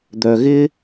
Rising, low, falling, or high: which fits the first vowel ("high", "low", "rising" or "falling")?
low